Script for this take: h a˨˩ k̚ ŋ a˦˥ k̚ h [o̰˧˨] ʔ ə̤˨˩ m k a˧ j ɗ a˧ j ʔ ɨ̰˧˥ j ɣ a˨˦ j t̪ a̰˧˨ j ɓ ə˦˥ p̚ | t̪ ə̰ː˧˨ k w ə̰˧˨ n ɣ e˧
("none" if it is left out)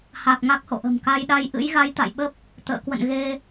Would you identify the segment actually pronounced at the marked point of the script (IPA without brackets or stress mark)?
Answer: o̰˧˨